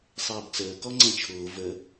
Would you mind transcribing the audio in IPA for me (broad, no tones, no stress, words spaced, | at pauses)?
sˤɛːbt͡səː kɔŋ͡ǀɛ̃t͡ʃʰʊː və